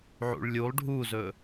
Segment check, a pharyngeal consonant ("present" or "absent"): present